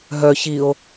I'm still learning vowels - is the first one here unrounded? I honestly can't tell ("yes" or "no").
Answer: no